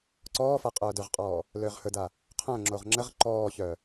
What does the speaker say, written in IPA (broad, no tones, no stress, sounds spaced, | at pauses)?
ǀ ɔː f a qʼ œː d ɵ ʁ qʼ ɔː | l øː ʁ h ɵ d a | qʰ œ̃ ŋ͡ǁ o ʁ ŋ͡ǁ ə ʁ ǃ ɔː ç œ